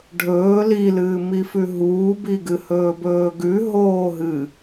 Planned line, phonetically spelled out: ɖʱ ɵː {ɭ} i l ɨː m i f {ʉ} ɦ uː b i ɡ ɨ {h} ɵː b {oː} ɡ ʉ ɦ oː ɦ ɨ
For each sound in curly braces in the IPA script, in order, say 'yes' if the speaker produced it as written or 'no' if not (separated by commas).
no, yes, yes, no